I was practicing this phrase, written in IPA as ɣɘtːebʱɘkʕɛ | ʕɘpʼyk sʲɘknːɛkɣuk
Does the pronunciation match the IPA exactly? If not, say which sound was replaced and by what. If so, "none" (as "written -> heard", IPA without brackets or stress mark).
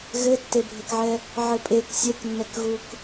y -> e